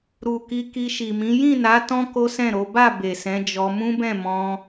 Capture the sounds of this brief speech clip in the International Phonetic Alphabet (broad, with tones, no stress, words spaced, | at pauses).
ɾu˨ ki˧ki˧ʃi˨mĩ˨˦ jĩ˦˨na˨˦ tɔ̃˦ ko˦sɛ̃˦˨ɾo˨˦ ba˦˨ be˨sɛ̃˨˦d͡ʒɔ˧ mũ˦bɛ̃˦˨ mɔ̃˧